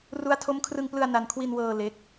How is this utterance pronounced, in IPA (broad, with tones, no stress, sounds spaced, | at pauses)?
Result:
r u˦˥ a̯ tʰ o˦˥ m kʰ r ɯ˧ ŋ p l ɯ˧ a̯ n a˧ n kʰ w i˧ n w ɤː˧ l e˦˥ k̚